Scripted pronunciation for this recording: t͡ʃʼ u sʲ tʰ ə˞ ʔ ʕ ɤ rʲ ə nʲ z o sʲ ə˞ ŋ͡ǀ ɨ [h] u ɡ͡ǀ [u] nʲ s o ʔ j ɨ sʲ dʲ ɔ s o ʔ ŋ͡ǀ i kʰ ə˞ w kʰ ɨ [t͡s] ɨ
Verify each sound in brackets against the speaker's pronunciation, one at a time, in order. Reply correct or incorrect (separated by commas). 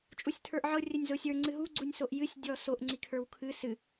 incorrect, correct, incorrect